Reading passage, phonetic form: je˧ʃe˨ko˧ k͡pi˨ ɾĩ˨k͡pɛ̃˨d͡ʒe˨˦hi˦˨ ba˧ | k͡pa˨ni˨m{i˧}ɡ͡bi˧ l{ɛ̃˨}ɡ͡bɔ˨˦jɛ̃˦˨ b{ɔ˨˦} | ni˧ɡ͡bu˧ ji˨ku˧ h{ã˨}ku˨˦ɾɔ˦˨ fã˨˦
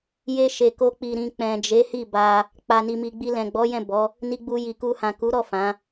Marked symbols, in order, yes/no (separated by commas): no, yes, yes, yes